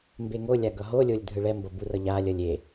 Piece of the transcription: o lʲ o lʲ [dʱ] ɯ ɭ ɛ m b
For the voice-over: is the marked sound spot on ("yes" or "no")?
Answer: yes